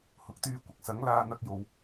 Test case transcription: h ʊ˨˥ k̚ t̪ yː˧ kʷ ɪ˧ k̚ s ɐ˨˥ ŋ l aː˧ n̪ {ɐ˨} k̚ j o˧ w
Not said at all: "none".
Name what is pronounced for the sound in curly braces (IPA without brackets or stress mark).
ɐ˥